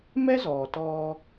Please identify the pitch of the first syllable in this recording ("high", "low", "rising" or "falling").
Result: high